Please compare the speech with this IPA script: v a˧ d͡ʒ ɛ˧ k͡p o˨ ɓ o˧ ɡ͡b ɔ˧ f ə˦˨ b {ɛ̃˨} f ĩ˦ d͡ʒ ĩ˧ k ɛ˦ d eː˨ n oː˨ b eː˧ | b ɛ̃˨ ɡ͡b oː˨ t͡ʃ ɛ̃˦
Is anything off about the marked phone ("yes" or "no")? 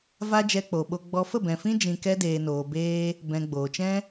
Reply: no